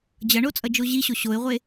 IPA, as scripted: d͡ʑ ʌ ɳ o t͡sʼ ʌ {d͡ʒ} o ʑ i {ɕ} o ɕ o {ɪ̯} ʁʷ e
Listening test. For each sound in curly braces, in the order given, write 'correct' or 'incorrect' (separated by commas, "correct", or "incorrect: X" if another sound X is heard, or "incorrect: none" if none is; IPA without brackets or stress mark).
correct, correct, correct